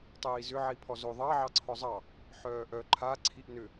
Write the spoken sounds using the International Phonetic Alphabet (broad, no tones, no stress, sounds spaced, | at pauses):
tˤ iː z ʏ ʕ i pʰ ɔ z o ðˤ ɑ ʕ ɑ ǀʰ ɔ zˤ ɑ | ħ œː ʔ œ ǃʰ a ǀʰ i ʔ n ʏ